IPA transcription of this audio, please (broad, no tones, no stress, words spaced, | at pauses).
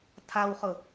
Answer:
tʰawχʊ